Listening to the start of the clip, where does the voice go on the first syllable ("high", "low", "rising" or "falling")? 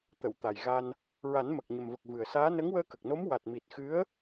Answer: low